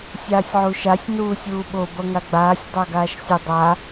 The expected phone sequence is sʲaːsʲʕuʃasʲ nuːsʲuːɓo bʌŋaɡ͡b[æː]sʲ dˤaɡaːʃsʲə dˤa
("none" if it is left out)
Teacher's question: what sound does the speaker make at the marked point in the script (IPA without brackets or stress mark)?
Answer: aː